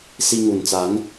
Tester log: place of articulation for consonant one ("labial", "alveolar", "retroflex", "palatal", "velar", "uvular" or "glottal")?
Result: alveolar